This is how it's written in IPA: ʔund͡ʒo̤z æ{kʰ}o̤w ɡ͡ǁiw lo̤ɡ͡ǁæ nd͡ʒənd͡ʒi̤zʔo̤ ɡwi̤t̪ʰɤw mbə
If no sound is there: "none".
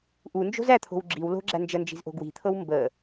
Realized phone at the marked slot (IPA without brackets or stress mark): t̪ʰ